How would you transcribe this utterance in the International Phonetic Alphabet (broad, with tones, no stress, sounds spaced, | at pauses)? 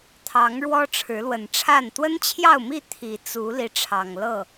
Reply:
t̪ʰ ɑ˨˦ ŋ ɻ w ɔ˦ ʈ͡ʂʰ ɻ̩˨˦ l w ə˨˩ n ʈ͡ʂʰ a˥˨ n t̪ w ə˦ n t͡ɕʰ j ɑ˥˨ ʊ̯ m i˥˨ t̪ʰ i˨˩ t͡s u˨˦ l i˨˦ ʈ͡ʂʰ ɑ˨˩ ŋ l ɤ˥˨